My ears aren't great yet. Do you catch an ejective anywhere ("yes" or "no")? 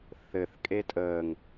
yes